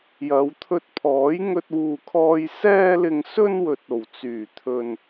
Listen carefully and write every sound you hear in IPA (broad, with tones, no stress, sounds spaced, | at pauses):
j ɐ˨˧ w t̪ʰ ɵ˧ t̚ pʰ ɔː˨˥ j ŋ ɵ˧ t̚ w uː˨ kʰ ɔː˧ j s ɛː˧ l ɪ˨ ŋ s ɵ˧ n w ɵ˨ t̚ o˨˩ w t͡s yː˨˩ t̪ʰ ɵ˨ n